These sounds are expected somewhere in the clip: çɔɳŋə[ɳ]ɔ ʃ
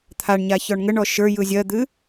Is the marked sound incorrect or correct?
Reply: correct